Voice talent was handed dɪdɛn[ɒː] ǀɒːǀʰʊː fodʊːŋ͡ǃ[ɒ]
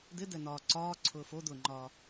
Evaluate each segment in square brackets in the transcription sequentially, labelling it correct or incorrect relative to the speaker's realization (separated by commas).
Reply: correct, incorrect